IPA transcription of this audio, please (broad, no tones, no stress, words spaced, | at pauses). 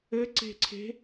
ɘǀe̤ǀʰe̤